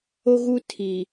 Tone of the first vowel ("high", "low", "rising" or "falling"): high